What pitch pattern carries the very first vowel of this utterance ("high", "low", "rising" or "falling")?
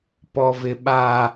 low